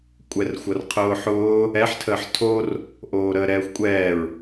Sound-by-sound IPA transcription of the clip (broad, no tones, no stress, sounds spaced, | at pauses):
kʷʼ ɛ r xʷ ʌ r qʰ ʊː ħ ʊː | ɛ ħ tʰ əː ħ tʰ o r | ʔ oː ɾ əː ɾ ɛː xʷ kʷʼ ɛː ɹ